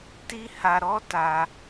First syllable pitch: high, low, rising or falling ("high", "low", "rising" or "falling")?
high